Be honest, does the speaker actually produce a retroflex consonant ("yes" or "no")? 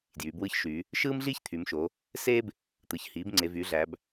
no